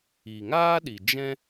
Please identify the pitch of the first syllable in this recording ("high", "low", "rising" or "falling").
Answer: low